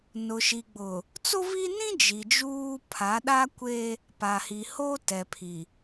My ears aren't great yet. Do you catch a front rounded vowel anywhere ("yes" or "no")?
no